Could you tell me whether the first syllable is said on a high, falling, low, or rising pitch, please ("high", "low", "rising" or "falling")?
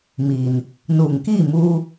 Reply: low